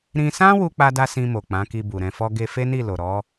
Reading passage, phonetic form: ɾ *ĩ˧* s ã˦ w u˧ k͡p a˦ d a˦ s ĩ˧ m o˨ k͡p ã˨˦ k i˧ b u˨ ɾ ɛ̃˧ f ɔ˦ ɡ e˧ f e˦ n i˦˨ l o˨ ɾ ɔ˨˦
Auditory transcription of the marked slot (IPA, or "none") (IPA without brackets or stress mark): ĩ˧